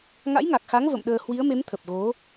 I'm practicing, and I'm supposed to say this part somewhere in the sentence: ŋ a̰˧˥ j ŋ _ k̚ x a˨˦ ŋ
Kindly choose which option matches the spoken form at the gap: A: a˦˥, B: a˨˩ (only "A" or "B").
B